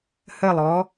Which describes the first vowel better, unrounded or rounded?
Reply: unrounded